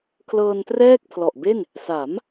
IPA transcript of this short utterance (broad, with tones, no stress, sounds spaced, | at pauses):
kʰ l ɤː˧ n t r ɛː˥˩ k̚ pʰ l ɔ˨˩ ʔ b e˥˩ n | s a˩˦ m